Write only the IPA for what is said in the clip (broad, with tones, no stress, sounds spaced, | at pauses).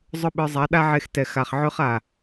zˤ ʊ˦ ɓ ə˞˧ zˤ a˨˦ ɗ a˦ ʕ e˧ x t ɛ˨ x a˨ χ ʕ ø˦ χ a˨